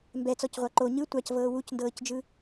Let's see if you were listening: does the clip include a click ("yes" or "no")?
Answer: yes